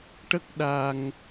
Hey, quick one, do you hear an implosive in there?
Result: yes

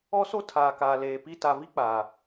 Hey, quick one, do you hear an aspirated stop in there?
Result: yes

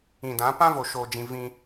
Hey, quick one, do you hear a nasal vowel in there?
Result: yes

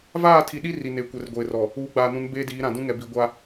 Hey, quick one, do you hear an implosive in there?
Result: yes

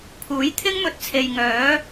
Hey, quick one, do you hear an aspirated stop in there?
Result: yes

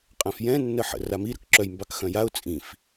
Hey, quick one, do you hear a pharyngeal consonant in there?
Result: yes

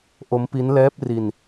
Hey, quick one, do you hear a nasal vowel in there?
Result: no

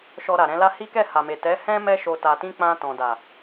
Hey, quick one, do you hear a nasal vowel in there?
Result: yes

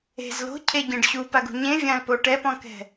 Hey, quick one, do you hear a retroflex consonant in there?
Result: yes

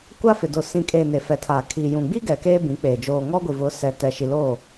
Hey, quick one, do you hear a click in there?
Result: no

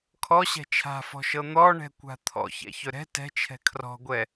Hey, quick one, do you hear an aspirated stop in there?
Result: yes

